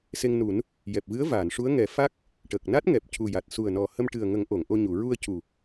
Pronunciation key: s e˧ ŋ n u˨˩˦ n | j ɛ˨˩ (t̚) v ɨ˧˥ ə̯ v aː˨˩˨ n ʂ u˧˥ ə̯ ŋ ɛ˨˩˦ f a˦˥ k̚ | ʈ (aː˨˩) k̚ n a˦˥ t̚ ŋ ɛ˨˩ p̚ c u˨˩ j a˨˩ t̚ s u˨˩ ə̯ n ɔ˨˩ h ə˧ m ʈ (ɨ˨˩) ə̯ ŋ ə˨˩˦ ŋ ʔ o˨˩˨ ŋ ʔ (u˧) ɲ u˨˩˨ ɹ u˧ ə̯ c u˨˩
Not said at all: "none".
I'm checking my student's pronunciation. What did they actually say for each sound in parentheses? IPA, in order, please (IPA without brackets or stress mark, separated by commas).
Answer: p̚, əː˨˩, ɨ˨˩, o˧